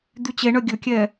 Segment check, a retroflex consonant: present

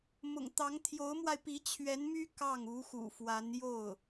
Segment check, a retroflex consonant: absent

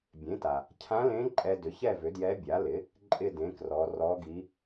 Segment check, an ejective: present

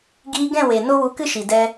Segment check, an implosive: absent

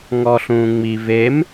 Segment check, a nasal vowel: present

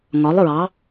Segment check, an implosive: absent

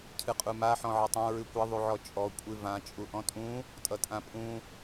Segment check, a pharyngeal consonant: present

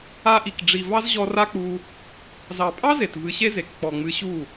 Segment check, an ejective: present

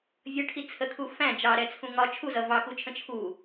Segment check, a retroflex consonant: present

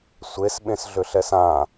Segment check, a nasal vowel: present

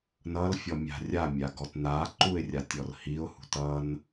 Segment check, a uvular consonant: absent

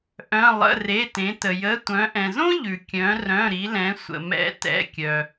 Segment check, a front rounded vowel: present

